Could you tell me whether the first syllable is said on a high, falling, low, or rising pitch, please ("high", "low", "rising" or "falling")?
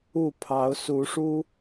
falling